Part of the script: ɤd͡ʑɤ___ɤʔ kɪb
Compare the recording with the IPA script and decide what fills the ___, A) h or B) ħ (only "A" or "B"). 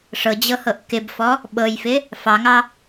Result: A